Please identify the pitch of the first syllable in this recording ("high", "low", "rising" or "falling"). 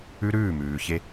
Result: high